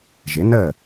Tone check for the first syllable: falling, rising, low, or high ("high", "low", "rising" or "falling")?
rising